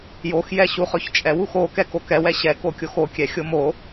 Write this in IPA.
joxjɛ ɕuχɵçt͡ʃʼɛw uxo kɛkokɛwɛ ɕɛkokʲox okʲɛ xʲomo

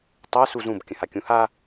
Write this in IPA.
tˤa suzũb kʲə̃hakʲũha

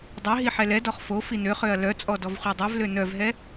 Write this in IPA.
dˤɛɦi ħɛlɛdɔχ fo finøχøɐ̯ lœt͡sʼɔ dɔvχʷɛdˤœvlø nœvɦɛ

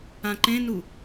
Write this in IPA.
ãǃẽnu

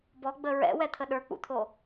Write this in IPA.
bɔɡ͡bə ɹɛ̰wɛt̪ʰə ɗə˞k͡pṵt̪ʰo

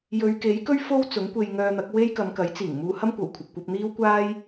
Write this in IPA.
jɵ˨˧ɥke˨˥jkɵ˥ɥ fo˥w t͡sʊ˨˥ŋkʷe˧jŋœː˧n̪ɐ˨˥k̚ we˥j kɐ˨˧mkɐ˨˥jt͡siː˨˩ŋ muː˧hɐ˥mkʷɐ˨˩wkʷʰɐ˨p̚ kʷɐ˧p̚n̪iː˥wkʷaː˥j

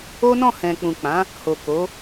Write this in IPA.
o˦nɔ̃˦˨ hɛ̃˨k͡pũ˨k͡pã˨˦ | ho˨ko˨˦

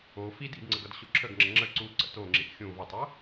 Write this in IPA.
o fid ḭdŋ͡ǀəɡ ʌdɕoǁʰəɡŋ͡ǁə ŋ͡ǁə ǀu ǀə̰toŋ͡ǁiʔ xʲũ vətˤo

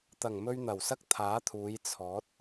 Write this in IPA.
t̪ɐ˨˩ŋmɵ˧ɥ n̪ɐ˨˩wsɐ˥k̚t̪ʰaː˨˥t̪ʰuː˨˧j t͡sʰɔː˨˥t̚

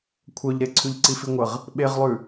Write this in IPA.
kʷʰœʎɾe ǀʰʉʎǀifiŋʷəʁ | ɓeʁlˠʉ

